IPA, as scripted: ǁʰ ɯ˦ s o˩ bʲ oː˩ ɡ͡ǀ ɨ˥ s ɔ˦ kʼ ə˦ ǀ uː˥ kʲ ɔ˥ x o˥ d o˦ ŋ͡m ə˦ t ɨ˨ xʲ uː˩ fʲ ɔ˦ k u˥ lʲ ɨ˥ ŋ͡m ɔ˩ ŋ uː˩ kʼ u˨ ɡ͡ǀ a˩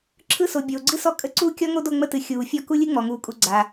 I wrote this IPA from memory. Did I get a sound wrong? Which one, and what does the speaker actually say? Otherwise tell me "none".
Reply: x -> ŋ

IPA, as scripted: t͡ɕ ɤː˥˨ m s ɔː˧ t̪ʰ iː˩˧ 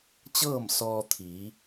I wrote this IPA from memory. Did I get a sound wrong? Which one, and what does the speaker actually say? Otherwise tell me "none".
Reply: none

